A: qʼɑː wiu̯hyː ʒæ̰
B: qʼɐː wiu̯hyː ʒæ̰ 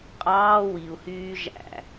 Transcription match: A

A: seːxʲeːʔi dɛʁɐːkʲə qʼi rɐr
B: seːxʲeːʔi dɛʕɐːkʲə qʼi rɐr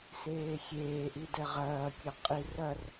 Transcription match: A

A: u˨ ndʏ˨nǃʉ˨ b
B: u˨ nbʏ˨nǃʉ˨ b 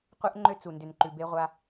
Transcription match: A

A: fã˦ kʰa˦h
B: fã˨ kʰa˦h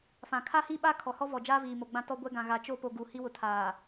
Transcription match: B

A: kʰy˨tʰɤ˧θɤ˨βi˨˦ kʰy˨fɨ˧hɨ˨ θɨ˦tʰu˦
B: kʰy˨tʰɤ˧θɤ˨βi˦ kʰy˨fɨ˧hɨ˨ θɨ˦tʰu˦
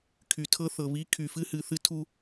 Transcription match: A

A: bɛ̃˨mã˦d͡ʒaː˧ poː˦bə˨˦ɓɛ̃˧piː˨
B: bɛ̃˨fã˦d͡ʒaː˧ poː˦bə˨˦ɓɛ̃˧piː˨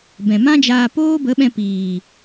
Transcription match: A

